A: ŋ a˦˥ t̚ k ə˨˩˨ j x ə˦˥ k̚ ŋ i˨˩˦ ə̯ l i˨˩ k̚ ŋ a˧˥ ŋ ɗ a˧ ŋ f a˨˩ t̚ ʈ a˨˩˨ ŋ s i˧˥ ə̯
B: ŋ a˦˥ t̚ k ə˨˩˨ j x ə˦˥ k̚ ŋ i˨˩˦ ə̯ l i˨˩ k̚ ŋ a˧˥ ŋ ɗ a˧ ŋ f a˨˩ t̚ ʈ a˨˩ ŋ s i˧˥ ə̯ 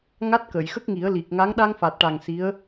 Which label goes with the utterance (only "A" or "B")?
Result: B